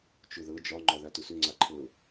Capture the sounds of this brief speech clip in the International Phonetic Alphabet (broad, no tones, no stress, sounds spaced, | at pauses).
t͡ʃ ʊ ð ɤ d͡ʒ ɒ ŋ͡ǃ ɒ ð a t ʊ s ø ŋ͡ǀ a ǃʰ ɤ